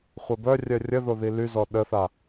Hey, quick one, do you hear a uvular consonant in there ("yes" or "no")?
yes